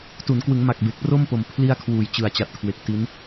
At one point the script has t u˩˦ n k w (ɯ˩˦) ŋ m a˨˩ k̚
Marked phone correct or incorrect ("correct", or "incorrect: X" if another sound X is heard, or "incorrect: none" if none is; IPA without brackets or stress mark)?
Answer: correct